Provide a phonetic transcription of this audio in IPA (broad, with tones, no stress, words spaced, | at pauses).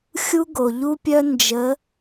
xʲu˥ɡo˨ ʎu˥pʲœ˥ nd͡ʒə˧˥